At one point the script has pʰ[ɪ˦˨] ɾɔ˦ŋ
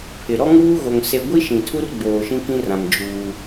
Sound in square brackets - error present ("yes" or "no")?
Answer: yes